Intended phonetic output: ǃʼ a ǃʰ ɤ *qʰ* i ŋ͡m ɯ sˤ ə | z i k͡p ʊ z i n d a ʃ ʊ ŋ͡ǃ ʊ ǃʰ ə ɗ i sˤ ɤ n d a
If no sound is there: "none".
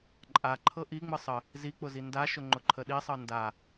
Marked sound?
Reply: ʔ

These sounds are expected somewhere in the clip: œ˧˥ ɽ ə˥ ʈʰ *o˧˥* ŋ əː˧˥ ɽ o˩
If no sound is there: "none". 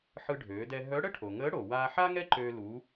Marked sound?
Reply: o˩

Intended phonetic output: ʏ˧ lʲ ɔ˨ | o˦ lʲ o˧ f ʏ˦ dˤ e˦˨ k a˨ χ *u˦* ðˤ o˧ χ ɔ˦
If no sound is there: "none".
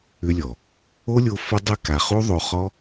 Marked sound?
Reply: u˦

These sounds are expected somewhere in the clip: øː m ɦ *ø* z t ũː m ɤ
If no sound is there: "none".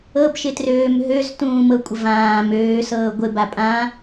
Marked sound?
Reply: ø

